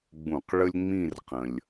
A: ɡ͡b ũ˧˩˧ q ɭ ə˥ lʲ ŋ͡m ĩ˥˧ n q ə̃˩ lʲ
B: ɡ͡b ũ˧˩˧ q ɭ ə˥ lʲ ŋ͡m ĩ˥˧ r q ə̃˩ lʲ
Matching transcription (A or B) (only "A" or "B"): B